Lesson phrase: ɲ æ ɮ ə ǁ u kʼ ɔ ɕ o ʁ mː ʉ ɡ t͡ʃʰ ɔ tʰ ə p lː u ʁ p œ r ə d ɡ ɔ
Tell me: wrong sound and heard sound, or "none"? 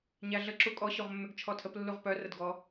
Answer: none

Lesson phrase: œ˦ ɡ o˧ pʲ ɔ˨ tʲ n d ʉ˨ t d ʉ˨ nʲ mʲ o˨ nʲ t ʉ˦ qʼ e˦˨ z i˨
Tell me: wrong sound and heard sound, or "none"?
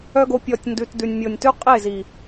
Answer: none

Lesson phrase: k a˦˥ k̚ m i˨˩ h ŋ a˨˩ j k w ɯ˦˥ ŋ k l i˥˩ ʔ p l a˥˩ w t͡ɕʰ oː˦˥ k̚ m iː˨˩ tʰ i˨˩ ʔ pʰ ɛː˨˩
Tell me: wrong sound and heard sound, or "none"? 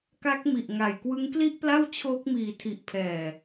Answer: h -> ʔ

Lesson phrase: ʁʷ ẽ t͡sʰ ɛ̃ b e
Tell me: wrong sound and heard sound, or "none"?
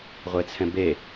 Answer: ẽ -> e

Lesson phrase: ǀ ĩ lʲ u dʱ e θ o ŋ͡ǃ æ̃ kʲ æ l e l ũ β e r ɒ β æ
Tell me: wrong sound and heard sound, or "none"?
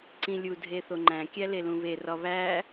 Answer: none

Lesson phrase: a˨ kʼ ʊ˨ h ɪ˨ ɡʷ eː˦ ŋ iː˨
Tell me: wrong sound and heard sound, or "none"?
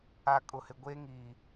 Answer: none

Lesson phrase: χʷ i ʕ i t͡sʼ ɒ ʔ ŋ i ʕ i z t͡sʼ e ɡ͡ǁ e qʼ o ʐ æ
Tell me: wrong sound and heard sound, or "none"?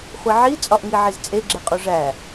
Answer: none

